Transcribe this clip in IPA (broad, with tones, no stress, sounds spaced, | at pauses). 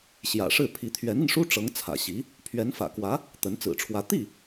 ɕ j ä̰˨˩ ʂ ɻ̩˥˩ pʰ i˧˥ t̪ʰ ɥ ɛ˧˥ n i˧ n ʂ u˥ ʈ͡ʂ ɤ˧˥ ŋ t͡sʰ ä̰˨˩ ɕ i˧˥ | pʰ ɥ ɛ˧˥ n f ä̰˨˩ k w ä˧˥ | t̪ ə˧˥ n t͡s ɹ̩˨˩ ʈ͡ʂʰ w ä˧˥ t̪ i˥˩